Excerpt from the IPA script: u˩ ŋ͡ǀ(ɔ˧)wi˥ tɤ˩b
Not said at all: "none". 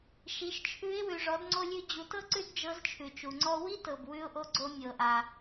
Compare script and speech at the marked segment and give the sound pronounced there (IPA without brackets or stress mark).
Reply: ɔ˧